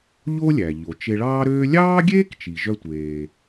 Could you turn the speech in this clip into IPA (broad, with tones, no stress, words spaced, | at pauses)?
ʎo˥lʲæ˩ʎo˩ t͡ʃe˧ɭɑː˥ɾøː˥ lʲɑː˥ɡʲeː˥k t͡ʃi˩ʒœ˧tʷeː˩